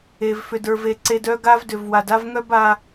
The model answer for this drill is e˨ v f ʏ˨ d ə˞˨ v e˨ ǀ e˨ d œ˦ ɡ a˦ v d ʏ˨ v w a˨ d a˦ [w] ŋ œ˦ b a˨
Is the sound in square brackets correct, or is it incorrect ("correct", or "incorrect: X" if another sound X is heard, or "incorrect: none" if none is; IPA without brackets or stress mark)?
incorrect: v